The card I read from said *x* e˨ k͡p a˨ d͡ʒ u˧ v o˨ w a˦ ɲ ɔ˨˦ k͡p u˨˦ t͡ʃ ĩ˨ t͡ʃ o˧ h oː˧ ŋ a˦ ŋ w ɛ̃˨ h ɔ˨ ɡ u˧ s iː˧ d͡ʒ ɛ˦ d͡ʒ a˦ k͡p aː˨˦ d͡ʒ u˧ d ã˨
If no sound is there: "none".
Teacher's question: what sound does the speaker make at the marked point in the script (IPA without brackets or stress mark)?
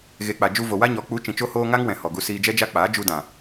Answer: ɣ